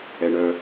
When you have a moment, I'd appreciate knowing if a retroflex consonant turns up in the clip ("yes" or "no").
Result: yes